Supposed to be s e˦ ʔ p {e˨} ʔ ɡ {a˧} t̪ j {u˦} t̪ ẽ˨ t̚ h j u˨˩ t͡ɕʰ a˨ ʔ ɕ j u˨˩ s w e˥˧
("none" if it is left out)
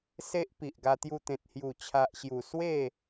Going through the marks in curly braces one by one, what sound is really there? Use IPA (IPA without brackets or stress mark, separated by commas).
i˨, a˧, u˧